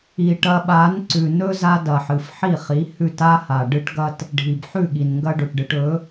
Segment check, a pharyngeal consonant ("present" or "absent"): present